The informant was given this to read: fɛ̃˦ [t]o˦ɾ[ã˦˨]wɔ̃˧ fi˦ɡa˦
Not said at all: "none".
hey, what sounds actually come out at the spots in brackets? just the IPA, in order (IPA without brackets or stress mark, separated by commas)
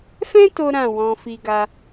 t, ã˦˨